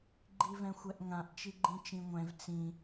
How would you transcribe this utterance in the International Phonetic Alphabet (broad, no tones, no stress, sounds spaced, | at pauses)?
ɡ͡ǃ i v ɛ̃ xʷ ɛ ʔ ŋ ã ʔ t͡ʃ i ɡ͡ǃ ĩ t͡ʃ ĩ ŋʷ ɛ̃ v t͡s ĩ